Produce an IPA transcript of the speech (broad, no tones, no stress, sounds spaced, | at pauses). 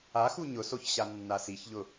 a x u ɲ ʊ s o ç ɕ a nː a s i ç ʎ ʊ